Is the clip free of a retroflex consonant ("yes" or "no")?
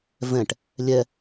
no